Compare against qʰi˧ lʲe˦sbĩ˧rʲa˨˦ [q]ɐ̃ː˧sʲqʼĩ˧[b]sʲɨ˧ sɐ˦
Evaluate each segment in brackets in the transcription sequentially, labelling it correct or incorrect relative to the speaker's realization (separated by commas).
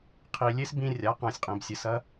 correct, correct